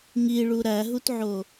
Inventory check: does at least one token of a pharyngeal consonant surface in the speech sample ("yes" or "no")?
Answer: yes